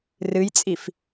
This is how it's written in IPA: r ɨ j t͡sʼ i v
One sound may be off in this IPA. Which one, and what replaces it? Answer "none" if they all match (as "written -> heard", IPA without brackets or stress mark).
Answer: v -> f